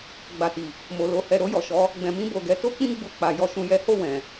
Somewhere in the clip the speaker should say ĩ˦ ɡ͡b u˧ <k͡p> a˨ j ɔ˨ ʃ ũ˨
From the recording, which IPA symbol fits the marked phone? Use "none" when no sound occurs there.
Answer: k͡p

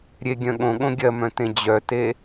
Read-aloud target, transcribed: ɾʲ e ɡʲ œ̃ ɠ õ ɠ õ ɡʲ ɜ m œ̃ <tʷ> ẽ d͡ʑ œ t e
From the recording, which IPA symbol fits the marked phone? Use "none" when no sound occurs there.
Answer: t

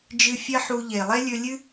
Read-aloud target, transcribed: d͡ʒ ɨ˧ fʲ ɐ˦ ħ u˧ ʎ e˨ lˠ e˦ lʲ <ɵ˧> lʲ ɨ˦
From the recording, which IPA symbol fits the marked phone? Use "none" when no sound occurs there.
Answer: ɵ˧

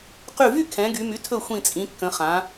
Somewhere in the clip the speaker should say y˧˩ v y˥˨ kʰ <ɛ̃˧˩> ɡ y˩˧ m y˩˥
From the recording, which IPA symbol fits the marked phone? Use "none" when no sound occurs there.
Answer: ɛ̃˩˧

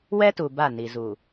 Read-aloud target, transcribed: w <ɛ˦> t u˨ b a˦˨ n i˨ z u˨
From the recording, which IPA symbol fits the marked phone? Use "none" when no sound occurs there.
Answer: ɛ˦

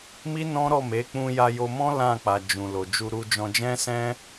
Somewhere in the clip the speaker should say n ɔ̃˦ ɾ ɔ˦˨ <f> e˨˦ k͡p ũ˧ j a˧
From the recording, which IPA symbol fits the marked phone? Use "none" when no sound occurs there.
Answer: m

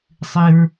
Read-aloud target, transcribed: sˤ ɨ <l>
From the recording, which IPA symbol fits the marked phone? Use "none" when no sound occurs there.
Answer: ɹ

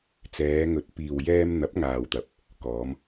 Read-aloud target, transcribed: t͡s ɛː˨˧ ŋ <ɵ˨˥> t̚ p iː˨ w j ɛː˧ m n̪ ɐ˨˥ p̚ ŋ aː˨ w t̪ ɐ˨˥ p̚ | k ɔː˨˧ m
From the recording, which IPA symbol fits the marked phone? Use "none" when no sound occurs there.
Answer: ɵ˨˥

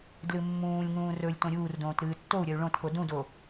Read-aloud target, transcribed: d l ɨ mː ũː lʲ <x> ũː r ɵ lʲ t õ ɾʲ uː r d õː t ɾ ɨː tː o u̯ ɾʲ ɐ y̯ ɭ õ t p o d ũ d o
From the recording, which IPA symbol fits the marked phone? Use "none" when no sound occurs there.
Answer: ŋ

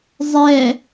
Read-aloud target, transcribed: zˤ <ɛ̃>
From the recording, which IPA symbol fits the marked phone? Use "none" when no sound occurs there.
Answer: ɛ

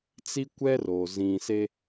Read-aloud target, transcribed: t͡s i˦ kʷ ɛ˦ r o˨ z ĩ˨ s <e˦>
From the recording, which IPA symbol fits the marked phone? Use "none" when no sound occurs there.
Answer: e˦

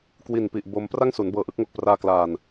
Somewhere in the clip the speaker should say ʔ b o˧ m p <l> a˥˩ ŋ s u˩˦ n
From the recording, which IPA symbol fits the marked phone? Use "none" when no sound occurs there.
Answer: r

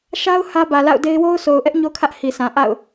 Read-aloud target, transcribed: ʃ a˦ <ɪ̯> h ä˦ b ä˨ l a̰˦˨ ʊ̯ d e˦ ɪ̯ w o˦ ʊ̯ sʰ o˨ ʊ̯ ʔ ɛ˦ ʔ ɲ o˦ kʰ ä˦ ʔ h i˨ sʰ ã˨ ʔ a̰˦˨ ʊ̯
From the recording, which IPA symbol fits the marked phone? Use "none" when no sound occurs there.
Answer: ʊ̯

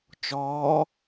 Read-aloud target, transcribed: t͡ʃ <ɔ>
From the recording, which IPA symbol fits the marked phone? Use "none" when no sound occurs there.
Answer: ɔː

